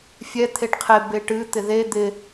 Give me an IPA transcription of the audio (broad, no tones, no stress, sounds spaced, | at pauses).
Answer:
fʲ ɛ t̪ʰ e ʈ qʰ e b e ʈ ɨ t̪ ɪ ð e d̪ ɪ